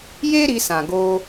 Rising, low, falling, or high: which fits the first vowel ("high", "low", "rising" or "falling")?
high